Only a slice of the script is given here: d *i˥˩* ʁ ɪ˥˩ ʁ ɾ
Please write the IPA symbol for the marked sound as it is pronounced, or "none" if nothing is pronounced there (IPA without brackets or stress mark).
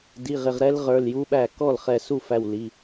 i˩˧˩